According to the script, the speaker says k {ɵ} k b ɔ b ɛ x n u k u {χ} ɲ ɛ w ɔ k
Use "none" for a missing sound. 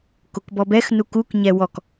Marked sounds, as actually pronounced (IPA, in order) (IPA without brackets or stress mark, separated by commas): o, k